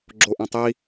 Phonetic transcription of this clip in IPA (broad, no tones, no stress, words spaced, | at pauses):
ɡ͡ǁoʔẽtˤi